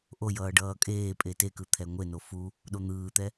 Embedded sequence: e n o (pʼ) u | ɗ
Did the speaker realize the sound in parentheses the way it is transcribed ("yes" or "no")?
no